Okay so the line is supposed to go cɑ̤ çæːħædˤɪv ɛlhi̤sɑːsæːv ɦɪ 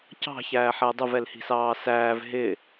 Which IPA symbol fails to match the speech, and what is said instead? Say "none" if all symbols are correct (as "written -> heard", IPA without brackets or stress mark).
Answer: none